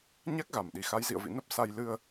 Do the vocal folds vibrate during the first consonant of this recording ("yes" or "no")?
yes